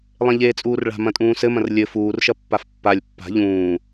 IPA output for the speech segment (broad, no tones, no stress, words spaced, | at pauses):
lˠẽʎeːt͡sʼuːrɭa̤ mɐ̃tʼũːsɘmɐ̃r lʲɘ fuːrʃɐ pːafpːalʲ pːa̤ ʎũː